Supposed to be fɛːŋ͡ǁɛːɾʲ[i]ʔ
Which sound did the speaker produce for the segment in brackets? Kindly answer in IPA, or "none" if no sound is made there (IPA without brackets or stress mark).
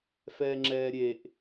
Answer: e